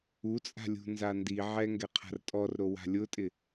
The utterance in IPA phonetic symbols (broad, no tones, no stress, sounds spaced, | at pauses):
u t͡sʼ a̤ lʲ ṳ n z a n d i ʕ ɛ ŋ ɡ ɛ qʰ a̤ r tʼ ɔ r ɾ o w a̤ lʲ ʊ tʼ ɪ